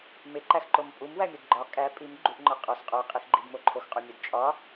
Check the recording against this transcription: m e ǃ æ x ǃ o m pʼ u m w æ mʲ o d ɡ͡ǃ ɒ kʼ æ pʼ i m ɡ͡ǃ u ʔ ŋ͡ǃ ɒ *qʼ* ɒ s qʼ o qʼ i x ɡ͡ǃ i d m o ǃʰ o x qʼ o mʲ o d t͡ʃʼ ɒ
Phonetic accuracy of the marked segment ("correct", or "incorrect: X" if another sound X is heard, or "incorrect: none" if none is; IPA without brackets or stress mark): correct